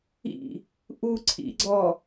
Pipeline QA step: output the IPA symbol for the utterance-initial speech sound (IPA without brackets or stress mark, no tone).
ḭ